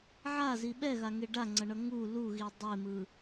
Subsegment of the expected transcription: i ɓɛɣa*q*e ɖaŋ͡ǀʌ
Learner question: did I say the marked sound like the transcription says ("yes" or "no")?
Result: no